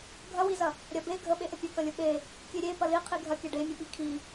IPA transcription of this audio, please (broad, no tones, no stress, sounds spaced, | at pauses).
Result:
ɡʱ ɐ w i z ɐ | ɾʲ ɐ b e ɡʱ ə ɓ e ʔ ə pʲ ɐ k ɐ lʲ ə ɓ e | kʲ e ɾʲ e p ɐ l i qʰ i ɡʱ ɐ kʲ ɐ ɖ e mʲ ə ɓ i kʰ i